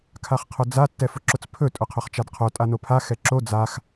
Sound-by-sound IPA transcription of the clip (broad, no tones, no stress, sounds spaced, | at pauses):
kʰ a χ qʰ ʊ d͡z a tː ɛ f ʊ ǁ ʊ t͡s pʰ ɵ tʼ ʊ qʰ ɵ χ t͡ʃ a d qʰ o tʼ a n o pʰ a x ɛ ǁ o d͡z a x